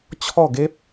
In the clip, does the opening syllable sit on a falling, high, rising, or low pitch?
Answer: falling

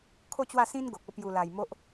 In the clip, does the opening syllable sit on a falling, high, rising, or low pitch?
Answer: falling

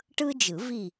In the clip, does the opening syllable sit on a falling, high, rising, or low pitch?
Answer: high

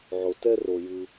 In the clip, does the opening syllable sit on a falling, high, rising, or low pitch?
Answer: low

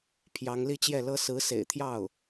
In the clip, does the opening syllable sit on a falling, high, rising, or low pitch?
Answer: rising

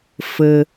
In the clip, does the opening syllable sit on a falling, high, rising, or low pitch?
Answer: low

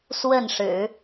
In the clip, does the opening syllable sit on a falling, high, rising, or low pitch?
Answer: falling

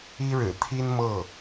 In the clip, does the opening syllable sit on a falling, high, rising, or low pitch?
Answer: high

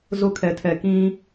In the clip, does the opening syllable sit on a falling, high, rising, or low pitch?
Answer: high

